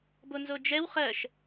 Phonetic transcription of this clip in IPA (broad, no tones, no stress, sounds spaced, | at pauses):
b o n z o d͡ʒ ɛ w χ ɜ ʃ